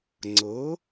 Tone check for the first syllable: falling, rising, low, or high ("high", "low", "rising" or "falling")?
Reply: rising